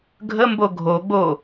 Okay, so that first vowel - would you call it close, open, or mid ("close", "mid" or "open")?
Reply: mid